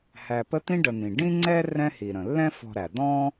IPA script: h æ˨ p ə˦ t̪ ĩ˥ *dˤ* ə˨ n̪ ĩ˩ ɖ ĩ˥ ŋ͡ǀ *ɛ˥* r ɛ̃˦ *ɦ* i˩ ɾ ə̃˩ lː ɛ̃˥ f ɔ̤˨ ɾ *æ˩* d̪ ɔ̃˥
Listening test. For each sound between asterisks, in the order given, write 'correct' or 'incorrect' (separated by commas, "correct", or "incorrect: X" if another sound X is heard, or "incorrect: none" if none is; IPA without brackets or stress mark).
incorrect: ɖ, correct, incorrect: h, correct